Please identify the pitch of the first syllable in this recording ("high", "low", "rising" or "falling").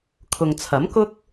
low